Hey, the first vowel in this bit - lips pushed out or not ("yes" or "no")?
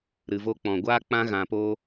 no